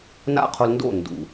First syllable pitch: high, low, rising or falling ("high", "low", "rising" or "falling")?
high